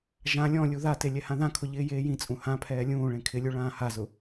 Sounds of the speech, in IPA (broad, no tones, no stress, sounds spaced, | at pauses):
ʒ ã lʲ ɔ̃ lʲ u ð a t e lʲ ɛ h ã ð ã kʰ ʊ ʎ ɪː j eː j ĩ t͡sʼ ũ h ã pʰ ɛː lʲ ũː ɭ ẽ kʰ ɪ lʲ u ɭ ãː h a z ʊ